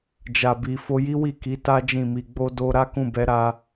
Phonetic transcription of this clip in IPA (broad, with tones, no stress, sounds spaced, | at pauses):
d͡ʒ a˨ b i˨ f o˧ j i˦ w i˦˨ k i˨˦ t a˦ d͡ʒ ĩ˦˨ m i˧ ɡ͡b o˧ d o˧ ɾ a˦ k ũ˦˨ b ɛ˨˦ ɾ a˧